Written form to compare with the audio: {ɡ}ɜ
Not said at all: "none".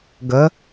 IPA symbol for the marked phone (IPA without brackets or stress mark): ɡ